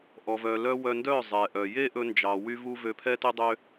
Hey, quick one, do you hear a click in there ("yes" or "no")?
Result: no